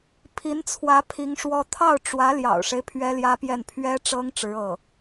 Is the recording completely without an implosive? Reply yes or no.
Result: yes